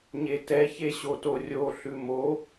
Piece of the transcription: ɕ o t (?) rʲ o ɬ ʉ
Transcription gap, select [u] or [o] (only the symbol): o